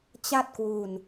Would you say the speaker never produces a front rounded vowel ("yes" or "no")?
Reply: yes